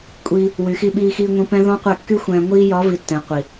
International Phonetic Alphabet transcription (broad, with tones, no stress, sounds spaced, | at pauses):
kʷʼ iː˧ | w y˨ x i˧ ɓ iː˧ x iː˧ ŋʷ ĩ˧ p ɛ̃˦ ð ɔ̃˦ qʷ ɛ˦˨ kː y˦ xʷ ɛ̃ː˧ ŋʷ iː˧ j ɒ˨˦ v i˨ tː ɛ̃˨ qʷ i˨